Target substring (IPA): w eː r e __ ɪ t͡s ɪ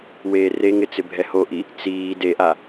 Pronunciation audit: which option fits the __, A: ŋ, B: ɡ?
A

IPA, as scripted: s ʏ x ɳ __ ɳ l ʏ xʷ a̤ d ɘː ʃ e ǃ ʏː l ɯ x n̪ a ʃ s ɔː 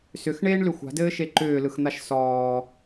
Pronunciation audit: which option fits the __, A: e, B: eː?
B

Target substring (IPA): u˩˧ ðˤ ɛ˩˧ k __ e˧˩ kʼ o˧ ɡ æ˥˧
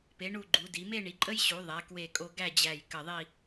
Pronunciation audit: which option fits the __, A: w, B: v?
A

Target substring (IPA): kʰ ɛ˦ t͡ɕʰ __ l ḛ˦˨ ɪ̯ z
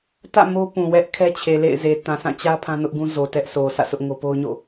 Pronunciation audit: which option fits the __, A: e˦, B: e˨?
B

